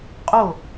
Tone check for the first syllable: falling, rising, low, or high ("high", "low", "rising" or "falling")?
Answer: falling